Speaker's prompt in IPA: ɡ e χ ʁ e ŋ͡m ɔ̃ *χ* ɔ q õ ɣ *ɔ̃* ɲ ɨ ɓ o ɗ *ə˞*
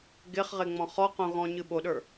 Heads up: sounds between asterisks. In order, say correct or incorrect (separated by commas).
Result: correct, correct, correct